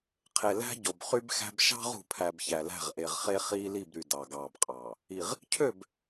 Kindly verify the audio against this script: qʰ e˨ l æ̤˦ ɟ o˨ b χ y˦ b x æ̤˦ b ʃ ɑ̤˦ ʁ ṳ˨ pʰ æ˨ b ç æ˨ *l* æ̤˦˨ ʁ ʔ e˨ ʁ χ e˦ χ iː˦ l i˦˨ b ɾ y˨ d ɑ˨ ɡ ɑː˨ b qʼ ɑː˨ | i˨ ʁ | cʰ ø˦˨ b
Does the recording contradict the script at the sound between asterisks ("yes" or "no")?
no